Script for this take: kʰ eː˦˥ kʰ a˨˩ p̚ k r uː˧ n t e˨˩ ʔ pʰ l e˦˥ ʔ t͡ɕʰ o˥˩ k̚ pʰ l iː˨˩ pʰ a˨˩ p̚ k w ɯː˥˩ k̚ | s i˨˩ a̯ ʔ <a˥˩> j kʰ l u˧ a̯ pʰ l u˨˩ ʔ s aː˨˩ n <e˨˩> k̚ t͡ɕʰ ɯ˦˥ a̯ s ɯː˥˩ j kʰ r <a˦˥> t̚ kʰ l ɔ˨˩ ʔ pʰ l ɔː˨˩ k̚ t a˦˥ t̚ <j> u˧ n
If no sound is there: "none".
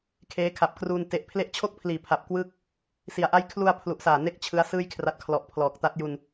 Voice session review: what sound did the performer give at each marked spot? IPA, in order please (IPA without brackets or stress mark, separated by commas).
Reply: a˥˩, e˦˥, a˦˥, j